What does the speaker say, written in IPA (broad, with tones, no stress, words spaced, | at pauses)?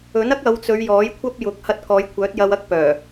ɵ˨˥nɐ˥k̚ɐ˨˧wt͡sɵ˨˧ɥ jɔː˨˥jkʷʰɐ˥p̚jʊ˨˥k̚ hɐ˧t̚kɔː˨˧jkʷʰœː˨˥t̚ jɐ˧wɐ˥k̚pœː˨˩